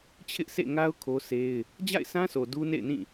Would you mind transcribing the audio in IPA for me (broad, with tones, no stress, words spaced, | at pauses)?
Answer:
t͡ɕʰɪ˦ʔsʰḛ˦˨ŋa˦ʊ̯ kʰo˦sʰe˦ɪ̯ | d͡ʑa̰˦˨ɪ̯sʰã˦so˨ du˦nḛ˦˨ɪ̯nĩ˦˨